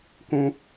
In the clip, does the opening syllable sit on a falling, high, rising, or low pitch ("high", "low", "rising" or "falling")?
high